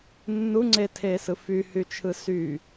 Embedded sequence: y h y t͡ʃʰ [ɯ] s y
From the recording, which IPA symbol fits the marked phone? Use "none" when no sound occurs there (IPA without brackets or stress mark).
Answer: ɯ